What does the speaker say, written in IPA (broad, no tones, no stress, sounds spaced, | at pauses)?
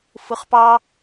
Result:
f ɯ χ p ɑ